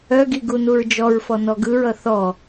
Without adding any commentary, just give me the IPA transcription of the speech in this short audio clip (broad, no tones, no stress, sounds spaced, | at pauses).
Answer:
œ ɡ i ɡ u n u ɹ d͡ʒ ɔ ɹ f ɔ n ɔ ɡ ɯ ɹ ʌ θ ɔ